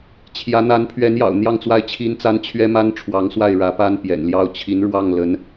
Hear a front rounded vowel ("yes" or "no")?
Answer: no